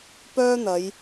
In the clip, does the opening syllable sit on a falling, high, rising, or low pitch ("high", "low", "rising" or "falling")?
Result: high